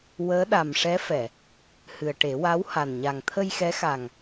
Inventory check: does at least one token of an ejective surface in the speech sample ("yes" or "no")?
no